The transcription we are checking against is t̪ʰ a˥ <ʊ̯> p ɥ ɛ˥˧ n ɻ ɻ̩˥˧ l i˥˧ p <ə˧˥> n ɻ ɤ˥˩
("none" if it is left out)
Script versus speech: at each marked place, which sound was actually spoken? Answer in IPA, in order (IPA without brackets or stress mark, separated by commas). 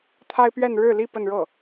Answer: ɪ̯, ə˥˧